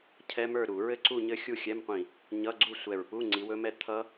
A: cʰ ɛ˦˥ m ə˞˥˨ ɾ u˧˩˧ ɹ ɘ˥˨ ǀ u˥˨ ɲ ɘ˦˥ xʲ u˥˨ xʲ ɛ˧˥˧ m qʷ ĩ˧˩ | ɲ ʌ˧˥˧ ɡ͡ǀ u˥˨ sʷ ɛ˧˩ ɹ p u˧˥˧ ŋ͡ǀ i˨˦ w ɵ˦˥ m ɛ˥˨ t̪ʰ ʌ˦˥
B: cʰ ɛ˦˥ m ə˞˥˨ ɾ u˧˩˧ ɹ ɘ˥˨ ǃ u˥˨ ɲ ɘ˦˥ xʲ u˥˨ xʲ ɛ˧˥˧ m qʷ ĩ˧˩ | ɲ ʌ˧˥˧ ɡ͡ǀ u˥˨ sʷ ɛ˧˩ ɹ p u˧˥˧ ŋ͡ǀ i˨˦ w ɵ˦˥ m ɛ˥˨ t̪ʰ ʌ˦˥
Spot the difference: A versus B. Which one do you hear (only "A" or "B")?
A